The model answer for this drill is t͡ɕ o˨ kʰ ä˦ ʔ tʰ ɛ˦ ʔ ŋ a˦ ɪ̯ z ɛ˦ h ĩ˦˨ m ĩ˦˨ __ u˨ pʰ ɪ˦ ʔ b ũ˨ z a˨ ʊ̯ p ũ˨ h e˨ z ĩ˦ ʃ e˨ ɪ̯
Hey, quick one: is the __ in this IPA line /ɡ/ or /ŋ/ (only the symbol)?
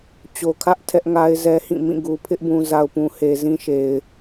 ɡ